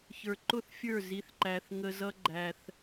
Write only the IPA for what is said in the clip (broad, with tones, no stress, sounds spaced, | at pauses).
ç ə˞˨ ǃ ʊ˦˨ θ fʲ ə˞˦˨ z i˦ θ ǃ æ˦ θ ŋ ə˦ z ʌ˦ ɡ͡ǃ æ˦ θ